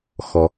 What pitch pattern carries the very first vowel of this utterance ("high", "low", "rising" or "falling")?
low